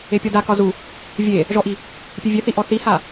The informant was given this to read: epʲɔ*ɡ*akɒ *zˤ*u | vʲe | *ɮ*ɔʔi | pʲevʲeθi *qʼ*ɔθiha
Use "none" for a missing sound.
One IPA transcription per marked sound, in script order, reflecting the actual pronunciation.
d, z, ʒ, ʔ

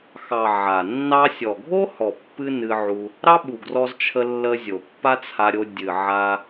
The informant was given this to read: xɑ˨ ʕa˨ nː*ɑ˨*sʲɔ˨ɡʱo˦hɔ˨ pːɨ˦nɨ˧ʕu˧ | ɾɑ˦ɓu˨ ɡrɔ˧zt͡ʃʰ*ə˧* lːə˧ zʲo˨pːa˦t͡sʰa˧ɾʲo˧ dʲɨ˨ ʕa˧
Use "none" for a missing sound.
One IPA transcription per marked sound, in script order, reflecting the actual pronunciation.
ɑ˧, ə˧

